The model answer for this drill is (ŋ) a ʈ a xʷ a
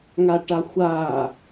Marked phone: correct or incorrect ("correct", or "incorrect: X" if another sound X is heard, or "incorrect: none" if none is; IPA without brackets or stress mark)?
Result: correct